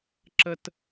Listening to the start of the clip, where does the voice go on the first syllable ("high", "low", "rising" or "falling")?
high